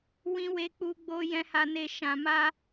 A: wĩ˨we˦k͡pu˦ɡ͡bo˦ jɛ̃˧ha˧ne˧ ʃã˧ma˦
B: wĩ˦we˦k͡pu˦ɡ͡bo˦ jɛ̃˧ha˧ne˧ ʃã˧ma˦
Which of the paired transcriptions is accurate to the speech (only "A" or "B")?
B